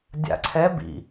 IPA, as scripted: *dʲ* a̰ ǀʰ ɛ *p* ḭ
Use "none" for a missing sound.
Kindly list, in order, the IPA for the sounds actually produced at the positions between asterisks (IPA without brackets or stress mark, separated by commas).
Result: dʲ, b